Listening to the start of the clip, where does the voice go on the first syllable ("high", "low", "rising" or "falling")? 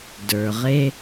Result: low